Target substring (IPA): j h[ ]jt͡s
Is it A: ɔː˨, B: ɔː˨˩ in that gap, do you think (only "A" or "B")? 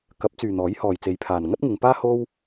A